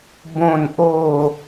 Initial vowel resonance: nasal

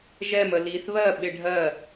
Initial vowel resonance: oral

